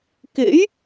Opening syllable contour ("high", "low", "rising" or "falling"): rising